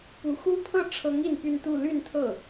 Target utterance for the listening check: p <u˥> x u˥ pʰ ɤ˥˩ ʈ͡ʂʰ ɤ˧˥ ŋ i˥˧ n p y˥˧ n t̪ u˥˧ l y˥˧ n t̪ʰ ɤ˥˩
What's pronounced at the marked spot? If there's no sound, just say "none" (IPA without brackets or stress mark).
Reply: u˧˥